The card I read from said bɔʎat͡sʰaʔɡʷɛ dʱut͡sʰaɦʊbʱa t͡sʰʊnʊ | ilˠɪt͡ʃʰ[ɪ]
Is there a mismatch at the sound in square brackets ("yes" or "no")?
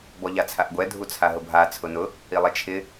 no